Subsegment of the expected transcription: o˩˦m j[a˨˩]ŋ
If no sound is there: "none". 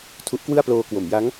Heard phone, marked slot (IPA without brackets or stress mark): a˦˥